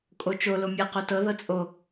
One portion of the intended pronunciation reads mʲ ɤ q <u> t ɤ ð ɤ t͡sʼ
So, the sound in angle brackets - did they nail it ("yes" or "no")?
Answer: no